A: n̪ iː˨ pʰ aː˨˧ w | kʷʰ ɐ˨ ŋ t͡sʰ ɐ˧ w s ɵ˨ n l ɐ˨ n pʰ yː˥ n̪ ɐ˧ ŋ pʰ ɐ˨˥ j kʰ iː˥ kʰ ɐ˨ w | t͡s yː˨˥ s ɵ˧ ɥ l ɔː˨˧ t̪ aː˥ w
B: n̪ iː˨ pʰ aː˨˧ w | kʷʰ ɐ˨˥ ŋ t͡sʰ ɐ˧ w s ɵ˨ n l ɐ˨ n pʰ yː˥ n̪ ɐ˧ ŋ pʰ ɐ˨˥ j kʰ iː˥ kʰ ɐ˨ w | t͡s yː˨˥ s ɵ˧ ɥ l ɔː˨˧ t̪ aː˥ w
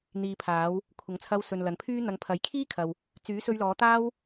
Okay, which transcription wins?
B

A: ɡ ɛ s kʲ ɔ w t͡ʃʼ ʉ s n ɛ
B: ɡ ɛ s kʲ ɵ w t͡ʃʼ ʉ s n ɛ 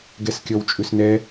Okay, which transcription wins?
A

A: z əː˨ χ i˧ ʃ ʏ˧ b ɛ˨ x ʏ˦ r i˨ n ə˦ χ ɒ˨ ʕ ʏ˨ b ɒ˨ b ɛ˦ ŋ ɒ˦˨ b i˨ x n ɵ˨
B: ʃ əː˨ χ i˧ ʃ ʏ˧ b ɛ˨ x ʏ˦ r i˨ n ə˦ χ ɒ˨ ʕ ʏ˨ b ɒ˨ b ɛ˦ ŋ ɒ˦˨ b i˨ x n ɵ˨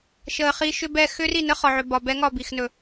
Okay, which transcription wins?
B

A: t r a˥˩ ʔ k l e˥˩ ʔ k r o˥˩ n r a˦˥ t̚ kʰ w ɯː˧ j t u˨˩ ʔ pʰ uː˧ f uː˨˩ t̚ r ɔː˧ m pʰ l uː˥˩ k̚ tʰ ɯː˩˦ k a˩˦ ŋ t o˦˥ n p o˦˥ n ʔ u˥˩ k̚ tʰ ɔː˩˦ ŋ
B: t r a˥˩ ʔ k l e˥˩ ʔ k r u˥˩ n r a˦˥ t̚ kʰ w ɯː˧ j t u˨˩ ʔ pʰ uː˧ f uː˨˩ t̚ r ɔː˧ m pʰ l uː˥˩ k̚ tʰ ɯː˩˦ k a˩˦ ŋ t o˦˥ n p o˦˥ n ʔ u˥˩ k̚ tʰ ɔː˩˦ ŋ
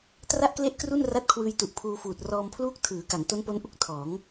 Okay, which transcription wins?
B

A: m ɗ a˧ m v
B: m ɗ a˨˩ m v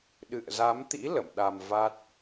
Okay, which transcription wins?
A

